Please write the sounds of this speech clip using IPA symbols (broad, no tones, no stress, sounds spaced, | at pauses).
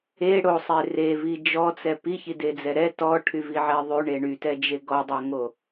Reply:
e ɽ o sˤ e r e v i d͡ʒ ɔ t͡s ɛ p i ç i d e d͡z ɛ ɾ ɛ t ɔ ʈʰ y v i ʕ ɛ ðˤ y ɳ e ɳ y t ɛ d͡ʒ e ɡ ɔ dˤ o ŋ o